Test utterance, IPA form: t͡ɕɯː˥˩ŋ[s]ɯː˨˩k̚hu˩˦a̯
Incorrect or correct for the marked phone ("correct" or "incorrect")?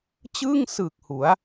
correct